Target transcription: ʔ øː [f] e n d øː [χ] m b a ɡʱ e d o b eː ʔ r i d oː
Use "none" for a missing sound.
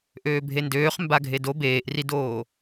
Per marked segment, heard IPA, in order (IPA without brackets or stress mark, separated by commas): bʱ, χ